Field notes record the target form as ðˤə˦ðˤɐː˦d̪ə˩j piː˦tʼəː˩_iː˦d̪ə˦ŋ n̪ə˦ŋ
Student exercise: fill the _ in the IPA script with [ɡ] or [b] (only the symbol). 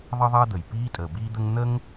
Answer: b